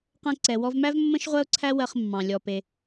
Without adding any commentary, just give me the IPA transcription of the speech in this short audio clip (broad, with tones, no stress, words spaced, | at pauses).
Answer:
qɛ̃˧ǀɛ˩wɔ˧vmæ˥v mːə̃˥ʃʁʷɜ˥ʊ̯ǀʰæ˥ wɜ˧χmːɑ̃˩ lʲɔ˩ pe˩